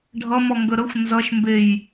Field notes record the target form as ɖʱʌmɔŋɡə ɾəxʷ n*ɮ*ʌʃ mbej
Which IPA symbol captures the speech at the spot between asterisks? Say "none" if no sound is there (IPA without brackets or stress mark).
z